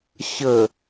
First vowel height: mid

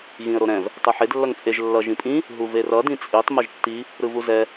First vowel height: high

